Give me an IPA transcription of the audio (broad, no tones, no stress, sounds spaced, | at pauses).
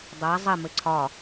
dˤ a zˤ ɘ m ɘ ǀʰ ɒ